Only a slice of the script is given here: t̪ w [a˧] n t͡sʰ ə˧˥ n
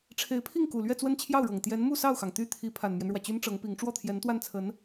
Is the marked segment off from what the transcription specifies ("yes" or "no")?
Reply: yes